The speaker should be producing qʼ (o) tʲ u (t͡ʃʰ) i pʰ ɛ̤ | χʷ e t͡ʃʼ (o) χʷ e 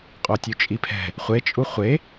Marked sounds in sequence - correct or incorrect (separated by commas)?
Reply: correct, incorrect, incorrect